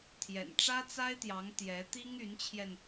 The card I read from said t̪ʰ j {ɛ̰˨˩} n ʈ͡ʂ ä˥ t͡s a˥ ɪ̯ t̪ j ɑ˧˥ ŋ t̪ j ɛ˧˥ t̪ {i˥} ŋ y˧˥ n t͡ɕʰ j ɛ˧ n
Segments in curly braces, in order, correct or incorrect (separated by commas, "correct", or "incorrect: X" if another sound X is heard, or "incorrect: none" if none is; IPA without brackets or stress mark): correct, correct